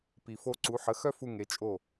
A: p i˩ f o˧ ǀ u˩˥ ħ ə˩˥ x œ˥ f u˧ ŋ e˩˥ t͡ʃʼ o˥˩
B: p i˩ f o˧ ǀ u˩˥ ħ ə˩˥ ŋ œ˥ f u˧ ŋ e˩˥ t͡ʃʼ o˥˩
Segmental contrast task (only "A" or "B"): A